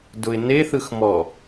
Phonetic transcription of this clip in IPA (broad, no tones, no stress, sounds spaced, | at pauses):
d ʊ ɪ̯ n e θ ɯ x m ɔ